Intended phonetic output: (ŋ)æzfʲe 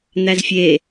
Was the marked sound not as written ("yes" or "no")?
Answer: yes